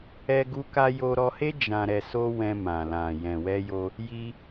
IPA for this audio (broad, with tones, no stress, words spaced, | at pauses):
ɛ˧ɡu˧ka˧ jo˧ɾɔ˧he˦ d͡ʒã˧ɾɛ˧so˦wɛ̃˧ mã˨lã˨ jɛ̃˨wɛ˧jo˧ | ji˧